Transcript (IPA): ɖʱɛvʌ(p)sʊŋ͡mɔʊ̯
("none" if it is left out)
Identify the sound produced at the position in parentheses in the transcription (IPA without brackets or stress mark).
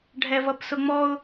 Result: p